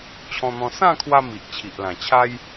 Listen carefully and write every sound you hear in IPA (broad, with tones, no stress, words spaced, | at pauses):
t͡ɕʰɔ̃˧n̪ɔ̃˧ sã˥˧kʰwa˧ mi˨ʔt͡ɕʰi˨ʔ lã˨˩t͡ɕʰa˦j